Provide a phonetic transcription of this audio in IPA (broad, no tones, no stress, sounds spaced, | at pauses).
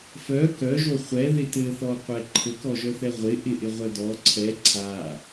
f œ k œ ʒ o χʷ ɛ ð ɪ t ɘ θ ɔ qʷ ɛ ǃʰ ɘ k ɔ ʒ œ θ ɛ ʁʷ ɪ ʔ ɪ ʔ ɪ ʁʷ œ d ɔ ǀʰ ɛ ǀʰ a